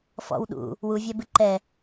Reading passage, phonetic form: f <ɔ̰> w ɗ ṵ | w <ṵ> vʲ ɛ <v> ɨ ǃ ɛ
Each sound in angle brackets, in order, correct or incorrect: correct, incorrect, incorrect

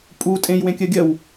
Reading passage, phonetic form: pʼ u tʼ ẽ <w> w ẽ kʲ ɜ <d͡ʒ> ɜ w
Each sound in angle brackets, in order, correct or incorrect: incorrect, incorrect

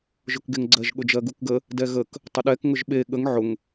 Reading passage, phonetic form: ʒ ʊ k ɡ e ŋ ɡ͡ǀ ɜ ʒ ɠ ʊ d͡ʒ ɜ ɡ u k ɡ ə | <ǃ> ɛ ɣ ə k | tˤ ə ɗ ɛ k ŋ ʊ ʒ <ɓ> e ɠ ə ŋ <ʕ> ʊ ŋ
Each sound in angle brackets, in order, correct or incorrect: incorrect, correct, correct

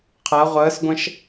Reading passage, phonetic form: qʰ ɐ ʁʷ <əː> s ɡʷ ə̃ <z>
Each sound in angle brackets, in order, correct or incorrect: correct, incorrect

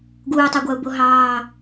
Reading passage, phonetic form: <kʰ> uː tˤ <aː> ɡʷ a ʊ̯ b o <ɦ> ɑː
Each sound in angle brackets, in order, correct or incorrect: incorrect, incorrect, correct

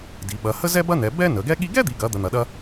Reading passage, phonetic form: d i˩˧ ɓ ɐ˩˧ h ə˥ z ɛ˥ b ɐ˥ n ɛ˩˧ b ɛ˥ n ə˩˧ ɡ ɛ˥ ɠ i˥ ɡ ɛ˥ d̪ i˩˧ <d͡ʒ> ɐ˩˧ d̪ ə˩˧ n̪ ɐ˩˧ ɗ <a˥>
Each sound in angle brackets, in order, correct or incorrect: incorrect, incorrect

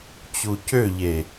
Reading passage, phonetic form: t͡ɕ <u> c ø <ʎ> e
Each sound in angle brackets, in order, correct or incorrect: correct, correct

